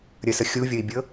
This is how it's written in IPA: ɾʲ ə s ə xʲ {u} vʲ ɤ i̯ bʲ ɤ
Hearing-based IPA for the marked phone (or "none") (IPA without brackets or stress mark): u